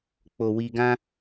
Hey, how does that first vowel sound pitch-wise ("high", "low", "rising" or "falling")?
low